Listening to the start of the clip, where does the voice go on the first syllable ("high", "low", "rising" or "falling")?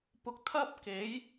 rising